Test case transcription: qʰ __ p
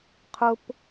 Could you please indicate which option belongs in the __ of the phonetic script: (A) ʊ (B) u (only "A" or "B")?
A